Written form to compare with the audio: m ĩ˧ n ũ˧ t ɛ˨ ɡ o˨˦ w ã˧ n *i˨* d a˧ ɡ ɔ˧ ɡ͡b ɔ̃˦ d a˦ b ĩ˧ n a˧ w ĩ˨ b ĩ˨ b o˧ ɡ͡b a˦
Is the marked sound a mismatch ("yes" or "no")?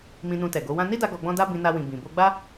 yes